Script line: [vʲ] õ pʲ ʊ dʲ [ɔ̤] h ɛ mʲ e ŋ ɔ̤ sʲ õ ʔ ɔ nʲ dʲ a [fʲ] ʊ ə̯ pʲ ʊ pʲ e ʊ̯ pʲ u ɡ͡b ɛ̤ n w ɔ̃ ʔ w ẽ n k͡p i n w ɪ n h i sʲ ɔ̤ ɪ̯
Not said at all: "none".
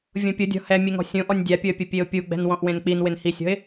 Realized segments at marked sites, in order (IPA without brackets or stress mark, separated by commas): vʲ, ɔ̤, pʲ